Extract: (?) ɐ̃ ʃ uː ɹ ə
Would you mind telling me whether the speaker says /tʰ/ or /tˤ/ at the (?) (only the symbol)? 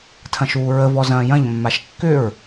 tʰ